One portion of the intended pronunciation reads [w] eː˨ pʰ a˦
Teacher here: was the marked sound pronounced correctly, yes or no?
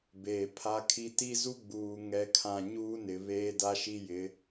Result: no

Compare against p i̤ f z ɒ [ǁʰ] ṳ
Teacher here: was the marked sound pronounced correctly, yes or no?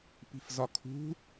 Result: no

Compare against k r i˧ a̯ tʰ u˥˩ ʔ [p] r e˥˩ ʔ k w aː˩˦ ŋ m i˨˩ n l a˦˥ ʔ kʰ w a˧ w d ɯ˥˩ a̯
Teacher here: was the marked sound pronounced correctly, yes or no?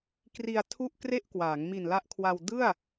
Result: no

